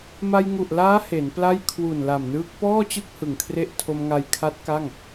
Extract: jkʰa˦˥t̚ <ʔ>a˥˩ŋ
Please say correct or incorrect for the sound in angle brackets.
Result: incorrect